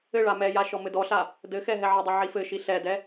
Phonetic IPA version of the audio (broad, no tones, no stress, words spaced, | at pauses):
ɘɭa mɛja ʃɔmɘdɔɬa | dɘxɛ ɦɛʕɘdˤi ʕifɘʃi ɬɛdɛ